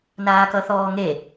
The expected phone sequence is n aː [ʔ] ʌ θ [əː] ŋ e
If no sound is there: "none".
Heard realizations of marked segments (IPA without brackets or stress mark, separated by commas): k, ɔː